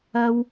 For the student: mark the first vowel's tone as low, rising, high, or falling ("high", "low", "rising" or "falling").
high